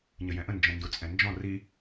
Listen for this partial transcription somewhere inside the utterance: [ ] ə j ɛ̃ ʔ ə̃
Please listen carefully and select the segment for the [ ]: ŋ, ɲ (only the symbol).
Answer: ɲ